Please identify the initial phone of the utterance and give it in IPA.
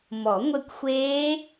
m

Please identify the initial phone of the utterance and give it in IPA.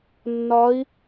nː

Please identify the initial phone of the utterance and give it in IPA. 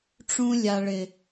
ʈ͡ʂ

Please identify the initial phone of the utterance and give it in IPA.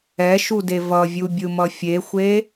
ɛ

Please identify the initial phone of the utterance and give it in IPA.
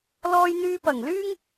l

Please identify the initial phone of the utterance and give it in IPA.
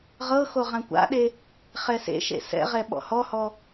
ʁ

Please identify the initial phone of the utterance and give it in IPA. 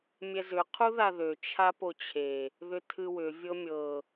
mʲ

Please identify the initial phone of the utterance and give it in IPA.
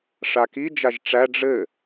ʂ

